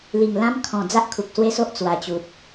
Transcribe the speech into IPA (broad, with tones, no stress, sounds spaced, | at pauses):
l i˨˩ ŋ l ã˧ m kʰ ɔ̃˨˩ d͡z a˦ ʔ kʰ u˨ k̚ s w e˦ s o˦ ʔ t͡s w a˨˩ t͡ɕ u˨ t̚